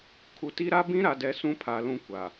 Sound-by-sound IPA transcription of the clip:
kʰ u˨ t i˦ ɾ a˦ b ĩ˦ ɾ a˨ d ɛ˨ s ũ˦ pʰ a˨ l ũ˦ kʷ a˨

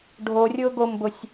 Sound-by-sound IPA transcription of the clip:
ɖʱ o rʲ ʊː ɡ o m b ʊ sʲ

